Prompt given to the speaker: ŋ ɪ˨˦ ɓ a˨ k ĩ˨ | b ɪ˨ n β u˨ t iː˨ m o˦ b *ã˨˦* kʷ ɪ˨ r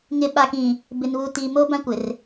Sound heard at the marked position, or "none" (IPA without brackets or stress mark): ã˦